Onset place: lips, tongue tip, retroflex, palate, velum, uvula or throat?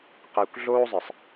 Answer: uvula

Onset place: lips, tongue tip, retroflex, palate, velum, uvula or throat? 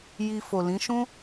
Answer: palate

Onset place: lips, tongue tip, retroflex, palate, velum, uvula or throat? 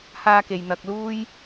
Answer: throat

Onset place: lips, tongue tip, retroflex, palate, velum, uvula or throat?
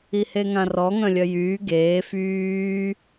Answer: throat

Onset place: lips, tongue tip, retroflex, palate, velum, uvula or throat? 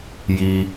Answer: palate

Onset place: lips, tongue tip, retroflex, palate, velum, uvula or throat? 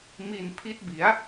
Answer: lips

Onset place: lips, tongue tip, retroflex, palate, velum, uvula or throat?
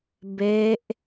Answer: lips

